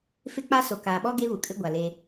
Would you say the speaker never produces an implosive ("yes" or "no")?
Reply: no